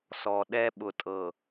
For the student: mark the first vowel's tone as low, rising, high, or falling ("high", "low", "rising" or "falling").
low